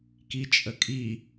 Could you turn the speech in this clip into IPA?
k i t͡ʃʼ ə kʼ i

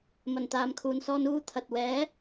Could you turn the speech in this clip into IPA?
m ɐ˨˩ n t̪ aː˨ m kʰ uː˨ n s ɔː˧ n uː˥ t̪ʰ ɐ˨ t̚ w ɛː˨˥

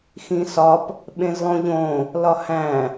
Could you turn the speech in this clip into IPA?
x ĩ s ɒ p | ɓ ẽ z lˠ õ ʎ õ | l ɒ h æ̃

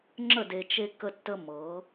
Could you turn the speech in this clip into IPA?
ŋ͡ǁ ə˦˨ d e˨ t͡ʃ e˦ k ə˦ tː ə˦ m ɤ˨˦

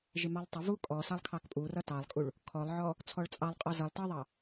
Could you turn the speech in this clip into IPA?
ʒ ɪ m ɑ lˠ tˤ ɪ v u kʼ ɔ s ɑ lˠ kʰ ɑ k pʼ u r ʌ t ɑ lˠ kʼ u ɭ | kʰ ɔ lˠ ʕ ɔ | t͡sʰ ɔ ɭ t͡sʼ ɑ lˠ qʼ ɔ z ʌ lˠ t ʌ ðˤ ɑ

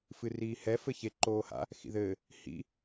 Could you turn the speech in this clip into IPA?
f ɨ r iː h ɛ f ɘ ç e ǃ oː h a̰ | x ḭ ð ɘː | h ḭ

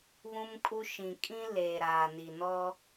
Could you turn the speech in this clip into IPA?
β ũ˦ m kʼ u˦ ʃ ĩ˨ kʼ ĩ˦ l eː˨ ɾ aː˨ n i˨ n ɔ˦

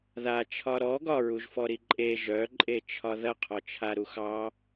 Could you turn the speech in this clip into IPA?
ð a t͡ʃʰ ɒ ɾ ɔ ɡ ɒ ɹ u ʒ f ɔ ɾ i ǃʼ e ʒ œ ǃʼ e t͡ʃʰ ɒ ð ɐ qʰ ɔ t͡ʃʰ a ɾ u x ɑ

